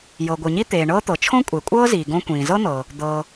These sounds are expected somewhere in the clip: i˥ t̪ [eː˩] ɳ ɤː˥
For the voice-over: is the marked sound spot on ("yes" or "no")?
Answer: yes